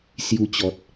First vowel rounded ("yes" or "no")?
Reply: yes